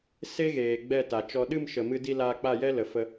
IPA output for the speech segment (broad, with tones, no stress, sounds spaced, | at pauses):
s e˦ ɣ eː˨ ɡ͡b ɛ˦˨ t a˨ t͡ʃ ɔ˧ ɗ ɨ˦˨ m ʃ ə˨ m ɨ˧ d i˧ l aː˧ k͡p a˦˨ j ɛ˦ l ə˨ f ə˧